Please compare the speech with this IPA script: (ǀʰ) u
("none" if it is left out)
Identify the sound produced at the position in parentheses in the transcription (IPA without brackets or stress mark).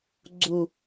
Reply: ɡ͡ǀ